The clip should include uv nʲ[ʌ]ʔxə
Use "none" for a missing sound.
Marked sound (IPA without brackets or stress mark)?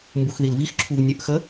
ə